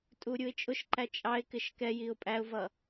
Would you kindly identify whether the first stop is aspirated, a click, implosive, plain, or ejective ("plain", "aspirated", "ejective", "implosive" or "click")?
ejective